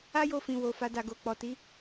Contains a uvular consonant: no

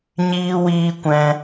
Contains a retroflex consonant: no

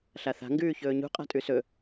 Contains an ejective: yes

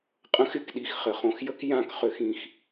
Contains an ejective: yes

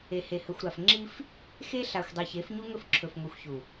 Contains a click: yes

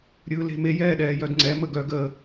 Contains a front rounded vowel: yes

